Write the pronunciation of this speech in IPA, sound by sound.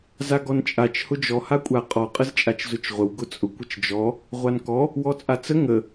z a ɡ ɔ n t͡ʃʼ a t͡ʃ h ʊ d͡ʒ ɔ h a kʷʼ a qʼ ɔ qʼ ə z t͡ʃʼ a t͡ʃ z ʊ t͡ʃ ʁʷ ə w ɡ ʊ t͡sʼ ʊ kʷ ə t͡ʃ d͡ʒ ɔ | ʁʷ a n k ɔ | w ɔ t͡sʼ a t͡s ə ŋ ə

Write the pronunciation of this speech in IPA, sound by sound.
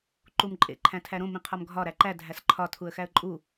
ǃ u m ǃʼ ḛ ǃʰ æ̃ tʰ æ ɾ õ m ĩ qʰ ɒ m ɡʱ ɒ ɾ æ ǃ æ dʱ æ s ǃʰ ɒ tʰ u ə̯ x æ ə̯ ǃʼ u

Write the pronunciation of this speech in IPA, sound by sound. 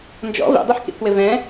n d͡ʒ ɔ̰ v ḭ dˤ i ħ k ḭ k w ɪ v ɛ̃

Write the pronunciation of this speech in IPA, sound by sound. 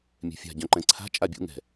mʲ ɛ̤ fʲ a̤ ɟ œ̃ ǃ ɛ̃ ǀʰ a̤ t͡ʃʼ a bʲ ṵ ŋ ɛ̤

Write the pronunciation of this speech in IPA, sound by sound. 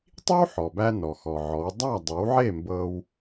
tˤ i˥ w ħ ɔ˩ b æ˧ n ɔ˩ x ɔ˩ ʕ ɔ˩˥ w dˤ æ˥˩ dˤ e˩˥ w ʕ e˥˩ m b ɤ˧ w

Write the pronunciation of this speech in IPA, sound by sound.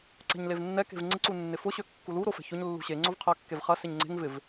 ǀ ɛ̤ ɲ l e v nː ɛ k e̤ v ŋ͡ǀ ɪ ǀ u nː ɪ f ʊ ɕ ø kː u l u ɾ o f ɛ̤ ç ʊ ɲ lː ṳ ɕ e ŋ͡ǀ o v qʰ ɐ kː e v χ ɐ s e ɲ ŋ͡ǀ e̤ ŋ v ɪ v

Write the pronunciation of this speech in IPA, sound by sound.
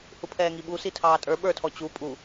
h u pʰ ɛː ŋ i ɓ u s i tʰ ɑː tʼ ə˞ ɓ ə˞ tʰ ɔ t͡ɕ u pʼ u

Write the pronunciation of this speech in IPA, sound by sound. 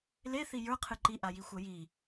l e θ i j ə˞ qʰ ɨ ǃ i ʔ a j i xʷ ɜ j i

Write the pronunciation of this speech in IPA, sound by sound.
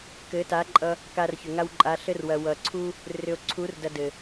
k ɘ˨˦ t a˨˦ ǃʼ ʌ˧ | k a˧ r ç ʏ˨ ŋ a˧ w ǃʼ a˨˦ ɬ ɘ˦ r w ɐ˨ w ʌ˨ ǀʰ u˦ | r ʏ˨ o̯ ǀʰ u˨˦ r d ɐ˧ d ɘ˨

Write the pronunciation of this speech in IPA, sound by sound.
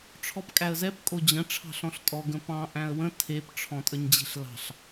ʈ͡ʂʰ ɔ p kʼ æ ə̯ z ɛ p kʼ o d͡ʑ ə̃ ʈ͡ʂʰ ɑ̤ ɬ ɔ̃ ɬ tʼ ɔ ɡ ə̃ p ɑ̃ ʔ æ̃ ə̯ w ə̃ tʰ e p ʈ͡ʂʰ ɔ̃ tʼ ə ɲ d͡ʑ e̤ ɬ l ɑ̤ ɬ

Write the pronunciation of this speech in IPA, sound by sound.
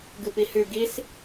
ɡ ɨ p i h ʉ ɡ i s

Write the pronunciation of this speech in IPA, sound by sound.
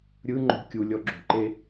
ɾʲ ɯ ŋ͡ǃ o̤ kʲ u lʲ ɔ ɡ͡ǁ o̤ ǃ e

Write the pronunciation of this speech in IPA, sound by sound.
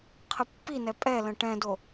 qʰ ə pː i n ɛ pʼ ɛ l ə̃ ʈ ɛ̃ d o

